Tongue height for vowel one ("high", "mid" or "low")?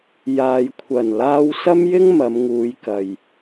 low